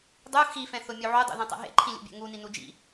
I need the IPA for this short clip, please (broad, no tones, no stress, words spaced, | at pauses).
dˤu xifɛ̃θʊmʲu ʕudˤṵðɛ̃tˤɛ̰ ɦḛǃʰĩlʲṵbʲɛ̰ ŋuninu d͡ʒḭ